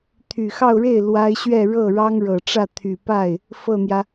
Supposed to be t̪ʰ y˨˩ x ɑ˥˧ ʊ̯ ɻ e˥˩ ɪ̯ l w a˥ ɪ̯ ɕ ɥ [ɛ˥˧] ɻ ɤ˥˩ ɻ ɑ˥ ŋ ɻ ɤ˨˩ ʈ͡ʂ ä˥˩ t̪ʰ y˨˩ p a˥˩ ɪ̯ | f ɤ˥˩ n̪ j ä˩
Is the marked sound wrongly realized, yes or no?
no